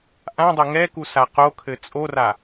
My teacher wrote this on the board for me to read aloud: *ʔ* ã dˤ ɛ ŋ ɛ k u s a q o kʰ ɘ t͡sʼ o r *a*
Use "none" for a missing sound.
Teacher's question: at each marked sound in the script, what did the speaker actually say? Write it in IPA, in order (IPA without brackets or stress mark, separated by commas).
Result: ʔ, a